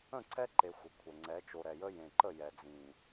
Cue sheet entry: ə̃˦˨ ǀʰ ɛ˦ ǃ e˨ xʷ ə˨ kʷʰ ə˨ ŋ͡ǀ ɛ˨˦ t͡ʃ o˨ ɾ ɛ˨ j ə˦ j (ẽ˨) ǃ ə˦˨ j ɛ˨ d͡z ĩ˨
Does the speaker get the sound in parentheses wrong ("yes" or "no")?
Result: no